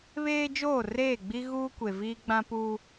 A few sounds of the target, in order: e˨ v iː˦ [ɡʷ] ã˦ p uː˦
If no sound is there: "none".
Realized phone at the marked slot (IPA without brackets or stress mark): ɡ͡b